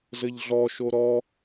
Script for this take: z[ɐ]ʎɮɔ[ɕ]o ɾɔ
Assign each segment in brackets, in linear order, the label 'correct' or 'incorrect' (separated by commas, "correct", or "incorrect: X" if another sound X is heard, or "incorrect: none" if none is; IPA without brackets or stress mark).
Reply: incorrect: ə, incorrect: ʃ